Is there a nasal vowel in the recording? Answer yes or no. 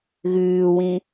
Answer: yes